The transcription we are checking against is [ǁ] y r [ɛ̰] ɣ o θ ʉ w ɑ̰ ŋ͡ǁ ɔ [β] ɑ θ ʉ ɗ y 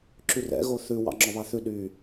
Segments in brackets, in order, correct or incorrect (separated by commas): correct, correct, correct